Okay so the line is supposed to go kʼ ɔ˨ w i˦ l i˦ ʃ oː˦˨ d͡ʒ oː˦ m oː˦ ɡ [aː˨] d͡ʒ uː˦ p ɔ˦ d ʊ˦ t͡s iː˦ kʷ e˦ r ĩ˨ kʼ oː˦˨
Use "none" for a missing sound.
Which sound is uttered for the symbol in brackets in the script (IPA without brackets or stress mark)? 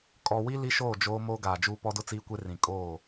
aː˨